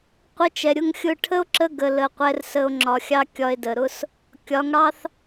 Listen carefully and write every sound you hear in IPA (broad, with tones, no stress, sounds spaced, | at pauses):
qʷ ə˧ t͡ʃ ɛ˨ ɾʲ ʊ˧ ŋ xʲ ʊ˦˨ ʈʰ ə˦ o̯ ǁ ə˧ ɡ ə˨ l ə˨ qʷ ɛ˧ r s ə˧ o̯ ŋ͡ǁ ɒ˨ xʲ ɑ˦ kʲ ɒ˧ e̯ d ə˨ ɾ ʊ˦ s | kʲ ɒ˨˦ ŋ ɽ ɑ˦ θ